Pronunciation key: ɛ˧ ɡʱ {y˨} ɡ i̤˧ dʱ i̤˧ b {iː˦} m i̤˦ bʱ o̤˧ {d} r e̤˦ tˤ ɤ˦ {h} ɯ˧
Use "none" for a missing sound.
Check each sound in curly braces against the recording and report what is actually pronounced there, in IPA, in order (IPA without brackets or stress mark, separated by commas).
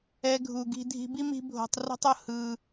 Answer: u˨, i˦, tˤ, h